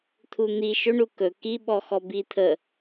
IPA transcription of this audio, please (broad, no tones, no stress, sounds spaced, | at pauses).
t̪ʰ u n̪ i ʃ ɵ ɳ u k ɵ k i ɓ ɔ x ɔ b i t̪ʰ ə